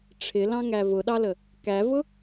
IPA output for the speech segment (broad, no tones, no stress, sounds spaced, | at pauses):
ʈ͡ʂʰ ɪ l ɑ̃ ŋ æ v ʊ ɗ ɑ l ə | k æ v ʊ